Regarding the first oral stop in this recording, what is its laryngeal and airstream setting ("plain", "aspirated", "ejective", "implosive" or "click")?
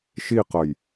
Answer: plain